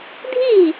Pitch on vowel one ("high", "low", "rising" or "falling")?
falling